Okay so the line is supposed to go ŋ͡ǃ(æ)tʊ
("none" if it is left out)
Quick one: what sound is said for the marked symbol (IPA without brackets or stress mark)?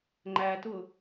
æ